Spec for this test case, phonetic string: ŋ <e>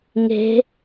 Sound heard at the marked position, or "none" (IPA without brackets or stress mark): e̤